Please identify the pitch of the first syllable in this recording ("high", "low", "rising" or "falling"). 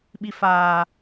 high